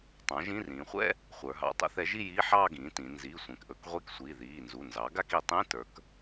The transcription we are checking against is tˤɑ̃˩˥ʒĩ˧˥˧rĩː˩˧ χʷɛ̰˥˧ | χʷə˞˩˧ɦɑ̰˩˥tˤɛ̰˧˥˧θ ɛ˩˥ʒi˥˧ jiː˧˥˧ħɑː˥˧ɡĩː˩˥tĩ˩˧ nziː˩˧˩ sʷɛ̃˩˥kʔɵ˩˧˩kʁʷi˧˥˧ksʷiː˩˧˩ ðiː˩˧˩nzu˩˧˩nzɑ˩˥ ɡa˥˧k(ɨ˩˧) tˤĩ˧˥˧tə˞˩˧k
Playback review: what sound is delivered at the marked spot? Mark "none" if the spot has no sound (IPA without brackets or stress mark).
i˩˧